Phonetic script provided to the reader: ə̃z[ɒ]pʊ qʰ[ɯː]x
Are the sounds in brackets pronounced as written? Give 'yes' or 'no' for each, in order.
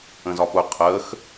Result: yes, no

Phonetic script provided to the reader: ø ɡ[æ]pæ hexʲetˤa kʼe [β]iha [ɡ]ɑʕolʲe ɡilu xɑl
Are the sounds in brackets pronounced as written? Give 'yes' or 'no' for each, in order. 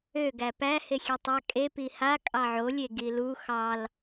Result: yes, no, no

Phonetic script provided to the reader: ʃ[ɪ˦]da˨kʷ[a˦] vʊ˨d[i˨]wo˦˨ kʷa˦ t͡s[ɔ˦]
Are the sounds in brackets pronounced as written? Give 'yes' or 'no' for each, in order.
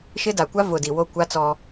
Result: yes, yes, yes, yes

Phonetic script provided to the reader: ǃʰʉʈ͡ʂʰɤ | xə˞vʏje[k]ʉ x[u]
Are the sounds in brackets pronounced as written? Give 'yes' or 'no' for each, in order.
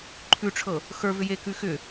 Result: yes, no

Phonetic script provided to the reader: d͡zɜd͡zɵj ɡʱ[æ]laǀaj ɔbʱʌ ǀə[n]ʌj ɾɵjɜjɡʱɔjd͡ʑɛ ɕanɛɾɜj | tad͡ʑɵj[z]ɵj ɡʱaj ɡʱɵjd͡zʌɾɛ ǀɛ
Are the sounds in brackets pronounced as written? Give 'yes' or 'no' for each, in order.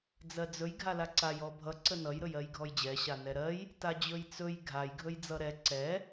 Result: no, yes, no

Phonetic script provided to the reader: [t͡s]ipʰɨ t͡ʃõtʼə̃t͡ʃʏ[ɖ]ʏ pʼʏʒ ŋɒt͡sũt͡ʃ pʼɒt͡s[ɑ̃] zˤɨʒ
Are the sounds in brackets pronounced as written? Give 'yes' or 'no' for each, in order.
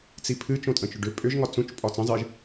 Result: yes, yes, no

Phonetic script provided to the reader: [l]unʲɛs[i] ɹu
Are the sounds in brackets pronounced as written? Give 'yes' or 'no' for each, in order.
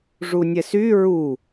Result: no, no

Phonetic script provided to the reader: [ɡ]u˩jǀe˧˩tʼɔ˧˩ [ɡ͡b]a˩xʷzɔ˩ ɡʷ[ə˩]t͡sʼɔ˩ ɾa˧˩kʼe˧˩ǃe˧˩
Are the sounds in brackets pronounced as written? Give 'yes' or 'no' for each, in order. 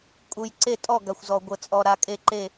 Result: no, no, yes

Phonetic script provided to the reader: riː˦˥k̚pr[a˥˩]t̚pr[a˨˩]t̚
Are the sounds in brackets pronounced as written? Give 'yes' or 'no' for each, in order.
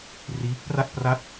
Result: yes, no

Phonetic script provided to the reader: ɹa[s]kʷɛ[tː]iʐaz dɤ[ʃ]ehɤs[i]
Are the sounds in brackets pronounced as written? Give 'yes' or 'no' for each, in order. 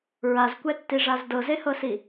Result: no, yes, no, yes

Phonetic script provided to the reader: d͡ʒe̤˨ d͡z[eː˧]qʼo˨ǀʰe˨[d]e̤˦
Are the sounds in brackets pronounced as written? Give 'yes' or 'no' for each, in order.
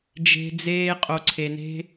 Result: yes, no

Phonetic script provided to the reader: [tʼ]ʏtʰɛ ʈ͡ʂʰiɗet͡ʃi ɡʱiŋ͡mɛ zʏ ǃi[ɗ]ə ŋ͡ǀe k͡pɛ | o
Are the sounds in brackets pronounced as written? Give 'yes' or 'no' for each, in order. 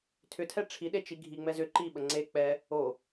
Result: no, no

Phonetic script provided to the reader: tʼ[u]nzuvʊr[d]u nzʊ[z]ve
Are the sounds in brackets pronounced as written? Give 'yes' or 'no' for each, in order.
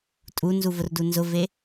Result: yes, yes, no

